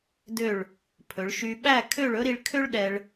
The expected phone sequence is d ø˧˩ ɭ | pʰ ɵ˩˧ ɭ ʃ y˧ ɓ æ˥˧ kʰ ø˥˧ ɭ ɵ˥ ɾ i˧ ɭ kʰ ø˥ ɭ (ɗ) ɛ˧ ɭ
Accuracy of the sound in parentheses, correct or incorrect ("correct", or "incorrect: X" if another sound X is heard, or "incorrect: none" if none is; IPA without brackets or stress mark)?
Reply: correct